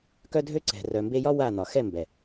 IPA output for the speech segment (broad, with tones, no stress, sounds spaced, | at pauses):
k œ˦ dʱ ø˦ ǀ ɛ̤˨ r œ˨ m b e˧ j ɒ˦ w a˦˨ n̪ ɒ˨ x ɛ˦˨ m b ɛ˨